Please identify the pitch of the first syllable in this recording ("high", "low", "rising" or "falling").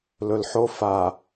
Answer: low